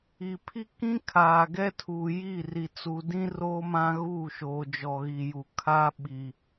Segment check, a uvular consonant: absent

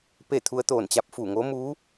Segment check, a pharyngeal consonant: absent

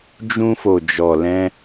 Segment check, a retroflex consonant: absent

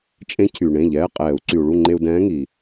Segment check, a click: present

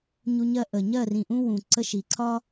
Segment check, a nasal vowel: present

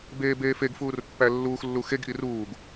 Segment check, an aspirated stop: absent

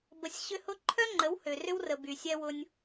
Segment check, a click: present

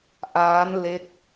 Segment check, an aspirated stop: absent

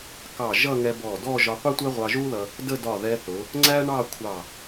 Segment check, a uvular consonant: present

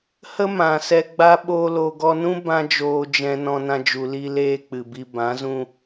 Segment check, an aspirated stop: absent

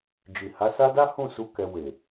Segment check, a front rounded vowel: absent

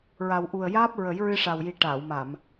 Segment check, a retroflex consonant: present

